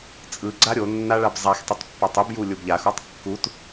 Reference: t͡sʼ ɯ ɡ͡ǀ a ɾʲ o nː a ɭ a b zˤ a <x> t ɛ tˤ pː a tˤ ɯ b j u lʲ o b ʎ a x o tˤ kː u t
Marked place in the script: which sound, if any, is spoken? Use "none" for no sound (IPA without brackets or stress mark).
x